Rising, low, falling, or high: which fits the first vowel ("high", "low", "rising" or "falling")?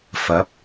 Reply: rising